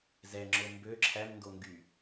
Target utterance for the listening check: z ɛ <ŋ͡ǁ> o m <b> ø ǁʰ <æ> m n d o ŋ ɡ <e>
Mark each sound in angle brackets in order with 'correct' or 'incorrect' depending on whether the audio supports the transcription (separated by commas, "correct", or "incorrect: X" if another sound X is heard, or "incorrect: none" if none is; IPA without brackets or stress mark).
correct, correct, correct, incorrect: y